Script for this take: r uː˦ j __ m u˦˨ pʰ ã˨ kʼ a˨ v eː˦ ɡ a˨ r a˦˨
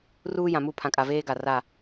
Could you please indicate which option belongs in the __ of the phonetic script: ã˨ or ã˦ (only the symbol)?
ã˨